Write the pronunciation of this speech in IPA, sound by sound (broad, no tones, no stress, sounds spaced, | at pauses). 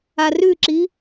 a r ʉ ǁ i